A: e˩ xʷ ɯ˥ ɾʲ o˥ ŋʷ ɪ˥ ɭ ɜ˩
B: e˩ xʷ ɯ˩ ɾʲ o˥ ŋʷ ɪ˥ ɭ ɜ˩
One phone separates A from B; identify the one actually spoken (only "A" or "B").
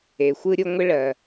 A